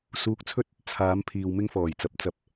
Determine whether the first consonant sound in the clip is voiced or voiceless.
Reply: voiceless